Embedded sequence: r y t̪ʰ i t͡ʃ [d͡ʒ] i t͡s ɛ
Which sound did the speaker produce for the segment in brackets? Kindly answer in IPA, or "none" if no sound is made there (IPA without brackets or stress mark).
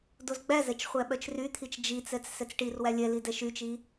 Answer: d͡ʒ